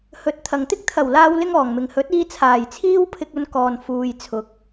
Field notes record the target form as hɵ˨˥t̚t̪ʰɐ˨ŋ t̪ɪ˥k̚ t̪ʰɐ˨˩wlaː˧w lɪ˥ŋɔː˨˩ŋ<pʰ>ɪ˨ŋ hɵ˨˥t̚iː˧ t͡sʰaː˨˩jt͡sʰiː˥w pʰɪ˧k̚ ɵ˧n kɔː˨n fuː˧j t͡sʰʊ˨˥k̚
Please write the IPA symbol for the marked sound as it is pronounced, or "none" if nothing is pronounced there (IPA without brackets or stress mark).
m